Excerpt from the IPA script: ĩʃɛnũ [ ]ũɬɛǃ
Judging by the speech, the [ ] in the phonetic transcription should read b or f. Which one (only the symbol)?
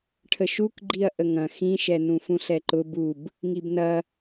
f